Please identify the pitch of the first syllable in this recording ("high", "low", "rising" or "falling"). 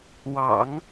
low